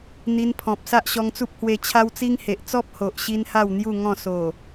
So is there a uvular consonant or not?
no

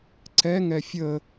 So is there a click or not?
yes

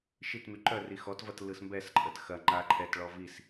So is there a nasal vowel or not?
no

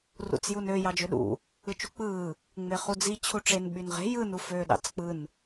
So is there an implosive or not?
yes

